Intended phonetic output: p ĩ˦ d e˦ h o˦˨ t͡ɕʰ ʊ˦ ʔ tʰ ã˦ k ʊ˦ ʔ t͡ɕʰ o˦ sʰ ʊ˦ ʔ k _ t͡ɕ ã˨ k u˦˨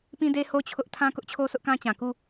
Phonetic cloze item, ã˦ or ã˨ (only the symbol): ã˦